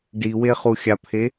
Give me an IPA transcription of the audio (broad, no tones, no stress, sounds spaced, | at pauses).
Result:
ɖ i w e χ u xʲ a pʰ e